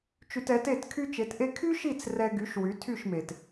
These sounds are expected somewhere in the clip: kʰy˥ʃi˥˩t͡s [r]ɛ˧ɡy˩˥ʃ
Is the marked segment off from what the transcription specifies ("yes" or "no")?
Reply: no